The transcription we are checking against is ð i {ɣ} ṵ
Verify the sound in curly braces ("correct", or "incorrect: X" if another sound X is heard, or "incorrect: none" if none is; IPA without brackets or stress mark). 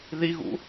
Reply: correct